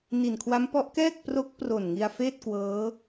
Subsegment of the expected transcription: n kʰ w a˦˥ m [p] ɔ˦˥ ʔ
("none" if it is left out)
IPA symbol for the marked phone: p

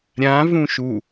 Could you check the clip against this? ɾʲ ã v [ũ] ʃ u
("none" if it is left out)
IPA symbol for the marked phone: ũ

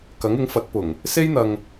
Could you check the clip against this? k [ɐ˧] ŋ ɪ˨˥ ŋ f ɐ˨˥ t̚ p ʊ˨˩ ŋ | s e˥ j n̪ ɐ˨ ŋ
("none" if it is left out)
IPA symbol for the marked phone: ɐ˨˥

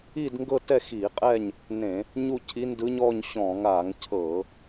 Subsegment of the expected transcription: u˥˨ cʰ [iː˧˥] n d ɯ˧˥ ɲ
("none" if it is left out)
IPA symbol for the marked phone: i˧˥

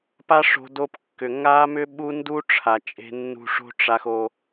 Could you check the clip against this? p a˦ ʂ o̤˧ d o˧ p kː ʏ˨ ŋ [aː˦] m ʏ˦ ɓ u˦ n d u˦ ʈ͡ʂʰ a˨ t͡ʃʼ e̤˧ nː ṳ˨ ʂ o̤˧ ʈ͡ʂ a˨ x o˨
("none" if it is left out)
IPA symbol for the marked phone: aː˦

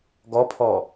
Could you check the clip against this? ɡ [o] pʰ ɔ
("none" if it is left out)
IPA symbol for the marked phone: ɔ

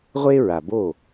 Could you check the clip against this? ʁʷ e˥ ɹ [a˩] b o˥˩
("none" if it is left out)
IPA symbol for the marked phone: a˩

